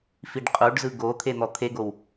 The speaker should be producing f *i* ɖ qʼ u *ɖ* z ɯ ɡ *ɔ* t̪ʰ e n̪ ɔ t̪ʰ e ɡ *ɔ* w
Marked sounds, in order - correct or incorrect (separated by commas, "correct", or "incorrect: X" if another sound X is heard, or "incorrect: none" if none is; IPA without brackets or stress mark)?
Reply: correct, correct, incorrect: o, incorrect: o